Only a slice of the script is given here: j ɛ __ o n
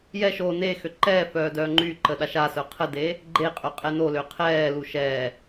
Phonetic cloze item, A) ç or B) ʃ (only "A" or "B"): B